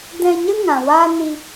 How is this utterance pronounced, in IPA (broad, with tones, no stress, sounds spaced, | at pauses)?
d ɛ̃˧ ɲ ə˦ ŋ ã˨ w aː˦ n i˧